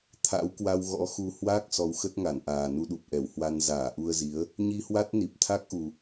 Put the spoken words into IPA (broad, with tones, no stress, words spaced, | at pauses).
t̪ʰa̰˧˥wkwa˧wɣɔ̰˧˥xu˧ hwaː˦˥k̚ sɔ˨˦wxə˦˥t̚ŋa˧˩nʔaː˨˩ nu˧ɗu˨˩p̚ʔɛ˧˩whwa˧n zaː˧˩ʔu˧ə̯zi˨˦ə̯ | ɲi˧hwa˦˥t̚ ni˨˩p̚t̪ʰa˦˥k̚ʔu˨˩